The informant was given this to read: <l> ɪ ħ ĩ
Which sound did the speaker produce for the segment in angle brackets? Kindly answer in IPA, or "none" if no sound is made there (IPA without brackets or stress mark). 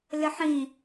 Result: l